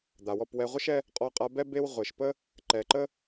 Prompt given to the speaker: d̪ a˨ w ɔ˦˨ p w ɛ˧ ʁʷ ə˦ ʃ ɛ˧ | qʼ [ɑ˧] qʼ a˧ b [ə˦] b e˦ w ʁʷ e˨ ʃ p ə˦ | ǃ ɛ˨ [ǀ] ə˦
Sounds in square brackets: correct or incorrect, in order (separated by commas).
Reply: incorrect, incorrect, incorrect